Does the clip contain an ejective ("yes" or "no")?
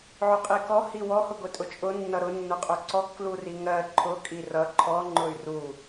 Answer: yes